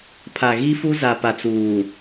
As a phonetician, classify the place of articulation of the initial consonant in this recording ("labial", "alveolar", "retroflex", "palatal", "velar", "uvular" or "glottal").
labial